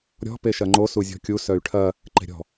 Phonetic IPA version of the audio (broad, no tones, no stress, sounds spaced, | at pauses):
ɾʲ ɔ̤ p e ʃ ɐ ŋ͡ǃ o s u zʲ ɔ̤ kʲ u s œ y̯ ʈʰ ɐ | ǃ e̤ ɾʲ ɔ̤